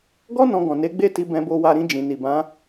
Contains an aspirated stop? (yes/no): no